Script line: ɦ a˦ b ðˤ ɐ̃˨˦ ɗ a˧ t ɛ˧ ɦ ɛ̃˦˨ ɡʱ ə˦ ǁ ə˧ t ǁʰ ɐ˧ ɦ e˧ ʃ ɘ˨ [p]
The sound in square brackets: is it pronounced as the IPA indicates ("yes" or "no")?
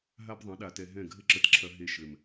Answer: no